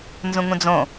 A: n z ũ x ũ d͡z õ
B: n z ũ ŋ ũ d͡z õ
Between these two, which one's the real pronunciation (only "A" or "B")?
B